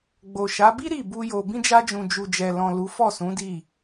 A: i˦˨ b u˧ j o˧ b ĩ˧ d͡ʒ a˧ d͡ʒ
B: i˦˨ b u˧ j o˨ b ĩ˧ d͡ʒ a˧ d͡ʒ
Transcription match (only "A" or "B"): B